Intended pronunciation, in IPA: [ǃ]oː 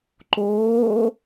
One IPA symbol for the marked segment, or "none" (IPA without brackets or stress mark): ǃ